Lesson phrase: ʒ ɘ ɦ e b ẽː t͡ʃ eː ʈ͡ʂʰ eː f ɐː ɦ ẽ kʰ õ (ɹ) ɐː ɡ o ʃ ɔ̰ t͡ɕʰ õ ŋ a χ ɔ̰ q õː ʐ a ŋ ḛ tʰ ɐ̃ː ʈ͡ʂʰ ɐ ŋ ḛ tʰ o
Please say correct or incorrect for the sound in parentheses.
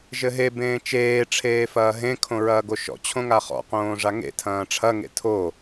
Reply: correct